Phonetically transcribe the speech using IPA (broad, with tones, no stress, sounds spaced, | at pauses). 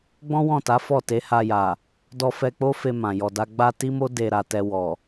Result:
ɡ͡b ɔ̃˦ w ɔ̃˦˨ t a˨˦ f ɔ˦˨ t e˨˦ h a˧ j a˨ | d ɔ˧ f ɛ˧ k͡p o˦ f e˧ m ã˨ j ɔ˧ d a˦ ɡ͡b a˦ t i˦ m o˦ d e˧ ɾ a˨ t ɛ˧ w ɔ˨